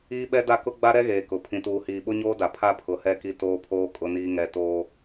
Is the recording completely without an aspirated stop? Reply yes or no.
no